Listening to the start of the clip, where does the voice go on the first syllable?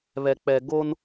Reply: low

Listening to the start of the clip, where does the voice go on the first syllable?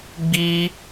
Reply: high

